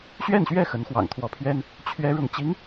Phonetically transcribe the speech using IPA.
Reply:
ɕ ɥ ɛ˥˧ n ɕ ɥ ɛ˥˩ x ə˧˥ n x w ɑ̰˨˩ ŋ t̪ʰ w ɔ˧˥ pʰ ɥ ɛ˥ n | t͡ɕʰ ɥ ɛ˥ ɻ ʊ˥˩ ŋ t͡ɕ i˧˥ ŋ

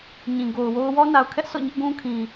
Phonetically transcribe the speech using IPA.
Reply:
ɲ ĩ˨ ɡ o˨ ʊ̯ w o˦ ʊ̯ w ɔ˦ n a˨ ʊ̯ kʰ ɛ˦ ʔ sʰ ɔ̰˦˨ ɲ ɪ˦ ʔ ɡ ũ˦ kʰ ĩ˨

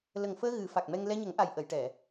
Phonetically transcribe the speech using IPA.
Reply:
l ə˨˩ ŋ f əː˧ ɣ ɨ˨˩˦ f a˨˩ k̚ m ɛ˧ ŋ l ɛ˧ ɲ ə˨˩˦ ŋ ʔ a˨˩ j ʔ ə˨˩˨ j ʈ ɛ˨˩˨

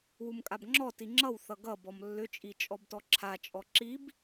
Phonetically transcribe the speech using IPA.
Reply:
w u m kʼ a b ŋ͡ǁ ɔ t i ŋ͡ǁ ʌ w θ ʌ ɡ ʌ b ɔ m lː ʏ t͡ʃʼ i t͡ʃʼ ɔ b t ɔ ǁʰ a t͡ʃʼ ɔ ǁ i b

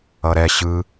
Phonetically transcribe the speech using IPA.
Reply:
ʌ ɾ ɛ ɕ ɯ

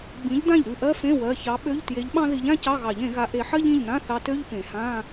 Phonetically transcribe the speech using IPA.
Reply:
ɡ͡b ĩ˨˥ ʎ d ã˥˩ ʎ ɾ ʉ˥˩ ʔ ɜ˥ f ẽ˧˥˧ w ɜ˩˧˩ ç ɑ˨˥ ɓ ø˧˥˧ ʎ t j e˨˥ ʎ ɓ ɑ̃˥ ð i˨˥ ʎ ã˥ c ɑ˧˥˧ ɣ ɑ˨˩˦ ʎ ẽ˨˩˦ ɣ a˨˥ ʔ e˨˩˦ ħ ɜ˥ ʎ ĩ˩˧˩ ʎ n ã˧˥˧ θ ɑ˨˥ t ø˧˥˧ ʎ p ẽ˨˩˦ h ã˧˥˧

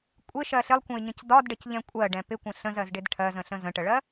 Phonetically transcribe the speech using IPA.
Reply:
kʷʼ ɪ ʃ ɜ ɬ ɪ lˠ kʷ ə̃ ɪ̯ ɲ ə̃ c d ɒ d ɖ ə c ʎ ɛ̃ kʷʼ ɜ ɖ ɛ̃ p ɪ kʷ ə̃ ɬ ə̃ z ɜ z ɖ ɪ d ʈʰ ɜ z ə̃ ɬ ə̃ z ə̃ ʈ ə ɭ ɜ

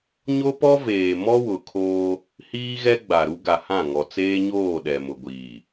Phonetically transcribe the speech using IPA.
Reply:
ɲ o˦ p ɔ˦ v eː˨ m ɔ˦ w ʊ˨ kʰ oː˦ | h iː˦ ɣ ɛ˦ ɡ͡b a˨ ɾ u˦ ɡ a˨ h ã˦˨ ŋ ɔ˨ t͡s eː˦ ɲ oː˦˨ ɗ ɛ˨ m ʊ˨ ɡʷ iː˨

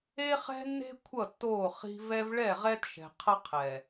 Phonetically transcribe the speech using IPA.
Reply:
e˦ χ ɛ̤˦ nː e̤˦ kʷʰ ʌ˦˨ tː oː˦˨ χ i̤˦ v ɛ˦ v ɭ ɛ˦˨ ʁ ɛ˦ t ʃ ɛ̤˨ qʰ ʌ˦ qʰ ɛ˨

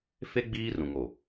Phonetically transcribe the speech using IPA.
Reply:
f e˦ ɡ͡b iː˦ r ũ˨ ŋ o˨

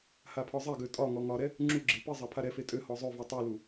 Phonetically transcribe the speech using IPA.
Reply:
h a pʰ ɒ zˤ ɛ ɡ ø tʼ ɒ ŋ ɔ ŋ ɒ ɾ ɛ | ŋ͡ǁ u ɡ͡ǁ e p i zˤ a pʰ a ɾ ɛ f e tʼ ø h ɔ zˤ ø v i tˤ u l u

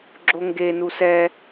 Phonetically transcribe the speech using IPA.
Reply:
ɡ͡ǁ o ŋ ɡ e n u s ɛ

